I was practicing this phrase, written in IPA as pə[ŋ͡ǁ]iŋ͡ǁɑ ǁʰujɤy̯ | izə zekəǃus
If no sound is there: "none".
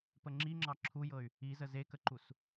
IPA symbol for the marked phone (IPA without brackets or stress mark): ŋ͡ǁ